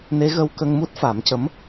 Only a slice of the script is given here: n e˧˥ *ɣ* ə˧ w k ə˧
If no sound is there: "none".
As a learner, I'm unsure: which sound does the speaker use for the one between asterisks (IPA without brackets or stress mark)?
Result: ɣ